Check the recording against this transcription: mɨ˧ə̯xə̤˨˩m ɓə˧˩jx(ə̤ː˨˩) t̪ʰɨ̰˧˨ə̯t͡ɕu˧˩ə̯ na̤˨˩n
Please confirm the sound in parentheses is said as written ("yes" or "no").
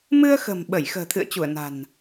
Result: yes